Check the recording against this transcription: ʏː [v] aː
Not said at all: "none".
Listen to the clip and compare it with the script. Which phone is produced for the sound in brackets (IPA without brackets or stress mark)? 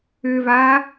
v